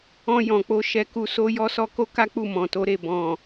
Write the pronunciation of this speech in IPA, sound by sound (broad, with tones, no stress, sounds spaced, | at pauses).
ɔ̃˧ j ɔ̃˨ k͡p o˧ ʃ ɛ˧ k u˧ s o˦ j ɔ˧ s ɔ˧ k o˧ k a˦ k͡p u˦˨ m ɔ̃˨ t o˨˦ ɾ e˦˨ b ɔ̃˨